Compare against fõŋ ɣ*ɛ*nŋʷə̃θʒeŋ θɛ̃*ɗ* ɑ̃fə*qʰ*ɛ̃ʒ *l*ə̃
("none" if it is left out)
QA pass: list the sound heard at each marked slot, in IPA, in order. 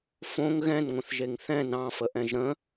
ɛ̃, n, ʔ, ɾ

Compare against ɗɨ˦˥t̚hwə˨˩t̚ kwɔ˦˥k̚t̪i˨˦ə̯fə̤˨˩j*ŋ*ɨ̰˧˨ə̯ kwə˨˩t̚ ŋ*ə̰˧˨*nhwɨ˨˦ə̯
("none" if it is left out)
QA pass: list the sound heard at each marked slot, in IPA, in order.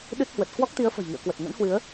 ŋ, ə̰˧˥

